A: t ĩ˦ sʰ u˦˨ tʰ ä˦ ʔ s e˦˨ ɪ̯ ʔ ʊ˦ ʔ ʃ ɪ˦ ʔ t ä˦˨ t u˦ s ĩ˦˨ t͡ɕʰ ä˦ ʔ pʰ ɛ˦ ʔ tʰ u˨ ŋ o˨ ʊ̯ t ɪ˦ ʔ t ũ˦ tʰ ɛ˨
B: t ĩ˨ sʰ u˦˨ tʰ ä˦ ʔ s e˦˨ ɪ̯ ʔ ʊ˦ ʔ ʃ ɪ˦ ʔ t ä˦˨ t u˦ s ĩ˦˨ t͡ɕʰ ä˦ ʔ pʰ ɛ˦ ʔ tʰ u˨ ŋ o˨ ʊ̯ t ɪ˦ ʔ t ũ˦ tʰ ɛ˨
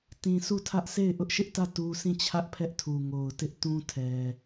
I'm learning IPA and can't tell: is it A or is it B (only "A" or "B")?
A